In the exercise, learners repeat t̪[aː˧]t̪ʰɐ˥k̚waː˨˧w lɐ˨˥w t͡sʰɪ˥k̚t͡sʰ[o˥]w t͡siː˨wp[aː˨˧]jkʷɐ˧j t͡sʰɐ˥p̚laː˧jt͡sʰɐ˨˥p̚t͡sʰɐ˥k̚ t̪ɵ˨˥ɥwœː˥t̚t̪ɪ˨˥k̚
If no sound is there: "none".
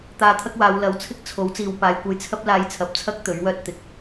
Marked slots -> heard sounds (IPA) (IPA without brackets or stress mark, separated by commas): aː˧, o˨˥, aː˨˧